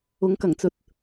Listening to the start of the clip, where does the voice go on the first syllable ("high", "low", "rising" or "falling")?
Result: rising